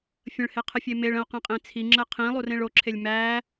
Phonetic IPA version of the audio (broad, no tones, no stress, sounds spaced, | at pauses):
fʲ ə̃ ɭ h e qʰ ə fʲ e m e ɭ ə̃ o̯ q ẽ qʼ ẽ t͡sʰ i ŋ͡ǁ ə qʰ ĩ lˠ u r ẽ ɭ o ǁʰ e lʲ m æ